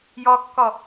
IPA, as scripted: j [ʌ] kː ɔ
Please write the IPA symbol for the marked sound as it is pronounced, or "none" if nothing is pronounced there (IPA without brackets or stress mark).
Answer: ɔ